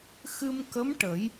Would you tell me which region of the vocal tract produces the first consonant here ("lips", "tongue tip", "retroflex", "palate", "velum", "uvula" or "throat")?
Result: velum